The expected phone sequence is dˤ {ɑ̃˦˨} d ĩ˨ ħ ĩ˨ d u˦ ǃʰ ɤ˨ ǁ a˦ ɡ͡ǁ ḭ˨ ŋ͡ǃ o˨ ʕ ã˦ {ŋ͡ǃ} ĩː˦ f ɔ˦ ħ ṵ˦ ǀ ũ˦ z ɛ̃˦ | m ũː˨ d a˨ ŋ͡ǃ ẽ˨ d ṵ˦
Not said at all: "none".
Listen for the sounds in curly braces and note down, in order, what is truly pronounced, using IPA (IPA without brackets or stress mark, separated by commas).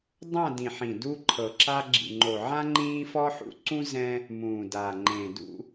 ã˦˨, ŋ͡ǃ